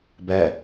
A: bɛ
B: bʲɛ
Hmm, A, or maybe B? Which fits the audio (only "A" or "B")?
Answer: A